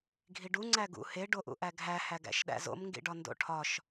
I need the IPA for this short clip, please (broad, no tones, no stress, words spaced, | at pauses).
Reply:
ɡʱiɖu ŋ͡ǀæɡṵ he ɖoʔṵʔæɡʱæ hæɡæ̰ʃɗæ̰zo̰m ŋɡḭɖɒndo̰ʈʰɒʃ